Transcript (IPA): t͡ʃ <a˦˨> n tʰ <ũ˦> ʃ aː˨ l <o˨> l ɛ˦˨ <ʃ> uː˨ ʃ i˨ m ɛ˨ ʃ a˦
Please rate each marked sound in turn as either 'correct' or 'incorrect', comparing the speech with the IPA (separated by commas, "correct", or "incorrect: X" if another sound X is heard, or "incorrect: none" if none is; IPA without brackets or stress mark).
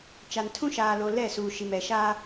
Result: incorrect: a˨, correct, correct, incorrect: s